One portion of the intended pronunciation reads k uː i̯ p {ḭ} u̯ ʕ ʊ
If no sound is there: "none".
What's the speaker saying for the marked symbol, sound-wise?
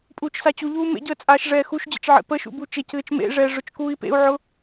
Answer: ḛ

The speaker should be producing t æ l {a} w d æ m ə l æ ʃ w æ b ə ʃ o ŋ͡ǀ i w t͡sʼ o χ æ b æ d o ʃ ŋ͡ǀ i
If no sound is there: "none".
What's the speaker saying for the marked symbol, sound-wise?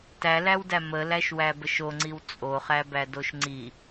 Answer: æ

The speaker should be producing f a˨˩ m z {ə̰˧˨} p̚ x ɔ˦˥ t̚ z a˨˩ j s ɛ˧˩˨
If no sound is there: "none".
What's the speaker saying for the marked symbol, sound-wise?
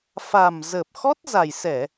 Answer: ə˨˩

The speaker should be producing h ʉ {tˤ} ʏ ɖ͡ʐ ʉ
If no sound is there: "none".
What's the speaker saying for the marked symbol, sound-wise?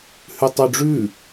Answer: tˤ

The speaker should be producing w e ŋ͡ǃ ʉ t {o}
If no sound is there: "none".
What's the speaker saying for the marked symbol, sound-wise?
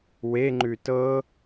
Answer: ɤ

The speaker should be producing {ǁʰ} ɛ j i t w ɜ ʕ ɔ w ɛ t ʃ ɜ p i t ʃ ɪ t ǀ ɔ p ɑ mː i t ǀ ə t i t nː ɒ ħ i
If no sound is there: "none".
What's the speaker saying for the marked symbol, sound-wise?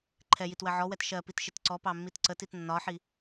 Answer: ǃʰ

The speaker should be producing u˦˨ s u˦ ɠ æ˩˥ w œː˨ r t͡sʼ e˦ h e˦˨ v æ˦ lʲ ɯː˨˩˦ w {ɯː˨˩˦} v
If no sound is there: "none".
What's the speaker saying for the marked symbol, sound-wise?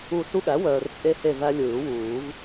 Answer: uː˨˩˦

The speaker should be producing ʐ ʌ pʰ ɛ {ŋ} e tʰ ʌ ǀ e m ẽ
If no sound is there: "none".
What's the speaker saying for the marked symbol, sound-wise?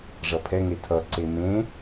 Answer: ŋ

